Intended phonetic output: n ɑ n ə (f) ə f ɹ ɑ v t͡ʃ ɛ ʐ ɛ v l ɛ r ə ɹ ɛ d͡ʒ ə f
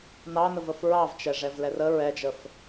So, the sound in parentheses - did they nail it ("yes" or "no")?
no